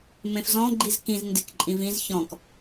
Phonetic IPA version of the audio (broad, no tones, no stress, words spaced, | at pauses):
mẽfzɔ̃ɡ͡ǃiz kĩz ndɪkǃʼĩ vĩz çɔ̃k